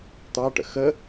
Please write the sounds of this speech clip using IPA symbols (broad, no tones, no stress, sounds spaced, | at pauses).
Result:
t̪ ɑ ʈ ə̰ x ə